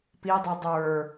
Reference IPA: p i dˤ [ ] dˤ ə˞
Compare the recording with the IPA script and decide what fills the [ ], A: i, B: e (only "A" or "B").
A